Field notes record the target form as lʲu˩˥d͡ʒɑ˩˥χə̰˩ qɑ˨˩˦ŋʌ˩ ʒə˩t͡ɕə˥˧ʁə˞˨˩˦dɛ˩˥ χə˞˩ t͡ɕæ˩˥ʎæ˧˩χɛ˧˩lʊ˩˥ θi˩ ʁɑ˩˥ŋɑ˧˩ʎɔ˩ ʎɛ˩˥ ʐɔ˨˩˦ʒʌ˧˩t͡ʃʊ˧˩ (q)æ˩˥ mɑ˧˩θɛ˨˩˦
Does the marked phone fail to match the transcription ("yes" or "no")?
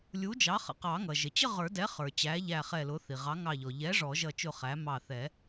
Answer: yes